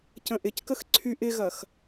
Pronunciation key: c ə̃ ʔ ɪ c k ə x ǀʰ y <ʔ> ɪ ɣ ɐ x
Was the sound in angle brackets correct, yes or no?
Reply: yes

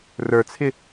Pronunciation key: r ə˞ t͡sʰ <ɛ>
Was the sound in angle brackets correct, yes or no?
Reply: no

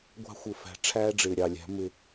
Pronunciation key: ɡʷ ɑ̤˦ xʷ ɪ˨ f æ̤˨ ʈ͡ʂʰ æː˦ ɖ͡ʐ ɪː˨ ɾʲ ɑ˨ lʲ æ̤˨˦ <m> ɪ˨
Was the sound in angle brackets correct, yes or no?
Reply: yes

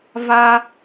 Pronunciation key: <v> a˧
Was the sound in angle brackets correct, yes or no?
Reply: yes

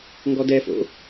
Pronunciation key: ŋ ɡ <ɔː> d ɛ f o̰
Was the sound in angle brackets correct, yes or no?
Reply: no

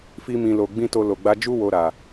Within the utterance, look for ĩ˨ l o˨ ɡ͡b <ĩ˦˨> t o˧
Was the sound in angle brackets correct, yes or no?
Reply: no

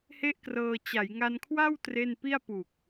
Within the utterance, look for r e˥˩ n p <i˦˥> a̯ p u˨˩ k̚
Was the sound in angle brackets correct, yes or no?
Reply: no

